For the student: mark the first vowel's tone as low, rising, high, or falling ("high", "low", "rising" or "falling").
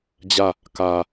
falling